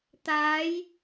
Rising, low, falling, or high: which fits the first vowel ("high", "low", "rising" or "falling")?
rising